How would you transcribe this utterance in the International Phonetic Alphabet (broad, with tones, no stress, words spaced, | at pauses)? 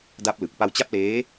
da˦˥p̚lɯ˨˩k̚ pa˧wt͡ɕa˦˥p̚leː˦˥